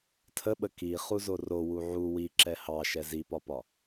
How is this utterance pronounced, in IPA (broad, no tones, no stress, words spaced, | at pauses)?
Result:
tʰəɓə kiχuzo rowu ʕu wiǁɛ hɑʃɛ zipɒpɒ